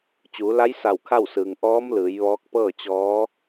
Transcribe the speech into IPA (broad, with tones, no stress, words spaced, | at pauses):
t͡ɕuː˩˧la˧˥j sa˧˩w kʰa˥˨wsɯː˩ŋ ʔɔː˧˥mlɯː˩˧j ʋɔː˧˥k̚pɤː˥˨ t͡ɕɔː˧˥